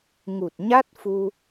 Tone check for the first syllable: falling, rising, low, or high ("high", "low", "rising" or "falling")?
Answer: low